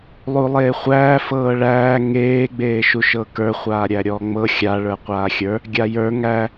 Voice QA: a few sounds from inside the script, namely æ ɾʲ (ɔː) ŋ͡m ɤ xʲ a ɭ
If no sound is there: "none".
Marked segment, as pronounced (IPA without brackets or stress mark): ɔː